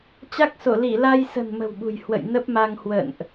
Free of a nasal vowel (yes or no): yes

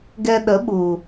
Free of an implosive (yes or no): no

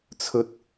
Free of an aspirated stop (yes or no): no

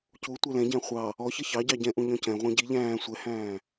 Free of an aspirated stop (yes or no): yes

